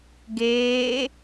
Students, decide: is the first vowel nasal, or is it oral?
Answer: oral